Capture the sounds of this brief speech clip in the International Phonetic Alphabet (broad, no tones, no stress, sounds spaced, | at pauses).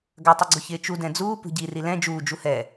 ɡ ɐ tˤ ʊ ɡ͡ǀ ʊ ç ɪː t͡ʃ u d ɛ̃ d͡z uː p ṳ ɟ i r i l ɛ̃ d͡ʒ uː d͡ʒ u h ɛ